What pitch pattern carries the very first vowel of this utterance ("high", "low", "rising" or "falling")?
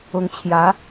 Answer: rising